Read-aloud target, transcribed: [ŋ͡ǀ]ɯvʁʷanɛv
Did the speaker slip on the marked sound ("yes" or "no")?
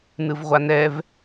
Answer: yes